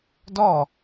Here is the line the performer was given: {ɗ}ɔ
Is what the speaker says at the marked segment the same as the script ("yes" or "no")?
no